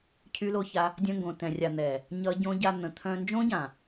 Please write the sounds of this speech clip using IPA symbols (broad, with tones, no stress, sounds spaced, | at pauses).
cʰ y˦ l o˦ ç a˦ | dʲ œ̃˧ ŋ ɡ õ˨ t ɛ̃˨ rʲ a˨ n̪ ɛ˨ | ɲ ʌ˦ ɟ õ˦ ɟ a˧ n̪ ə̃˨ t̪ʰ œ̃˧ n d͡ʒ õ˦ ɟ ã˨